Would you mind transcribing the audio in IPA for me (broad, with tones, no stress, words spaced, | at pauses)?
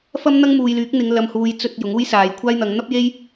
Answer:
fɐ˥mn̪ɐ˥ŋmuː˨jlyː˨˥k̚ n̪ɪ˨˧ŋlɐ˨mhuː˨˧j t͡sɵ˧t̚ jʊ˨˥ŋuː˥jsaː˨˧jkʷʰaː˥j n̪ɐ˨˧ŋn̪ɐ˥p̚je˥j